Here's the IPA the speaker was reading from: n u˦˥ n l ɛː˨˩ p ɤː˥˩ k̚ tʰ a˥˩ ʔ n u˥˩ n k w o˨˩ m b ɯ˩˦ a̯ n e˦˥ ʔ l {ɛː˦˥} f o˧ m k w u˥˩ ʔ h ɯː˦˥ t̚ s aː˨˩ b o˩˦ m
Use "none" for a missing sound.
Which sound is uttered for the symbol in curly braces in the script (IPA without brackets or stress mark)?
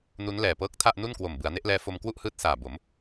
ɛː˦˥